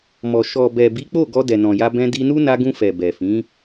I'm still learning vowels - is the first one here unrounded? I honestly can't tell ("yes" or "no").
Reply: no